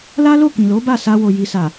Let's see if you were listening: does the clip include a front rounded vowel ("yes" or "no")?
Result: no